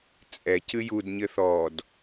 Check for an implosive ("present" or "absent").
absent